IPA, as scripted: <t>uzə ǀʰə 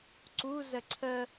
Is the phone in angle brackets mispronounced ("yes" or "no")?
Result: yes